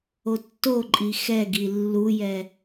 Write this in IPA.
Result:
otːoǃʼi xɛ ɡilːujɛ

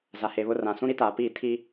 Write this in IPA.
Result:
za˨he˨βʊ˦ rã˨ sũ˦ ɾi˦taː˨piː˦˨ tʰi˦

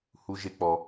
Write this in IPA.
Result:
hu˦ʒe˦k͡pɔ˧

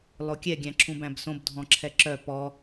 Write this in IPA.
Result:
lˠokʲɛ ɡʲæ̃ǁʰũbæ̃bsõb dʱɔ̃ǁʰɛǁœ pɔ

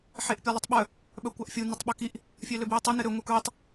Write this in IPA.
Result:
ħeʔpʲœlˠɘtˤɓœ | ɓœkʷaʔfʲu nɵtˤɓɵkiʔ | fʲøløbjitˤe nɘɾø ŋʷɘkɹetˤ

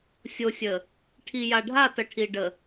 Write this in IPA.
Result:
sʲo˨sʲə˨ | ʈʰi˨ja˨ɖʱa˦˨ tə˨ʈʰi˨ɖə˨

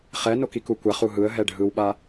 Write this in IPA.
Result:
χɛ nokikukʷaχ uɦɯə̯ ɦɛɖʱɯwɓa

